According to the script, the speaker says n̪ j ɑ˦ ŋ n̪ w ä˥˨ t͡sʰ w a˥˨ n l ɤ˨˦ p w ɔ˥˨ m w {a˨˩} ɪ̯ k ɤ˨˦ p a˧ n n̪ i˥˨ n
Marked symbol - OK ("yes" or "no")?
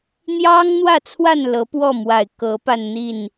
yes